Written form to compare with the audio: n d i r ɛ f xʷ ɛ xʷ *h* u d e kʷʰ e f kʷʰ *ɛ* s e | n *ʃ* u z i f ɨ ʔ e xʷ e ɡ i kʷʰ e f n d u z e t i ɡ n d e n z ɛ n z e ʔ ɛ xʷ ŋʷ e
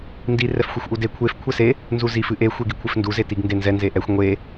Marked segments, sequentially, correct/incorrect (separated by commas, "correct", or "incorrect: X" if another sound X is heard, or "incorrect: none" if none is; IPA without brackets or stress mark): incorrect: ʔ, correct, incorrect: z